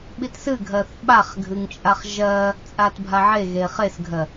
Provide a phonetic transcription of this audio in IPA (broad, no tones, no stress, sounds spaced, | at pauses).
ɓ i t s ɨ ɡʱ ɜ θ ɓ a χ ɡʱ ɨ ŋ t͡ʃʼ a χ ʒ ɜ | t͡sʼ a t bʱ a ʕ e ɣ e χ e s ɡʱ ɜ